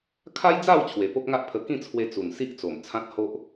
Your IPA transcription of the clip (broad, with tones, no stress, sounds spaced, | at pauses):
kʰ a˦ j d͡z a˥˧ w t͡ɕʰ w e˨˩ p o˦ k̚ ŋ a˦ ʔ pʰ ə˧ k ĩ˥˧ t͡sʰ w e˧ t͡s u˨˩ n s i˦ ʔ t͡s o˨˩ m t͡sʰ ã˦ t̚ h o˦ ʔ